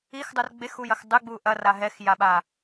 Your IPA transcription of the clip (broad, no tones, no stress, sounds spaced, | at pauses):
i x dˤ u r ɡ͡b e x u j ɐ x dˤ ɨ ɡ͡b u ʔ ɐ r a ɦ ɛ x j a ɓ a